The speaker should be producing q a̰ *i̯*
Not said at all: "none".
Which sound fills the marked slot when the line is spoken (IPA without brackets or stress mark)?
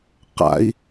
i̯